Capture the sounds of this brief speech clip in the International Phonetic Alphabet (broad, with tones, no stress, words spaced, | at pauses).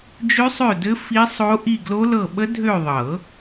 d͡ʒø˦˥sˤø˦˨dɘ˦˥ fi˦˥sˤo˦˥ ʔi˦˨ɡlo˦˥lɤ˦˨ ɓə˦˥dʱø˦˨ðˤɤ˨˩˦